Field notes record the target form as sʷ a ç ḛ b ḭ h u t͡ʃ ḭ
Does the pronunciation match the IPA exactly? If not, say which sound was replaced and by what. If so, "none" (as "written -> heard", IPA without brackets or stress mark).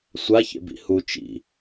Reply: none